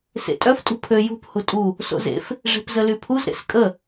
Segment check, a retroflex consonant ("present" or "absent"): present